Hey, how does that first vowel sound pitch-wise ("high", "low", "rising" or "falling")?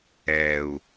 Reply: low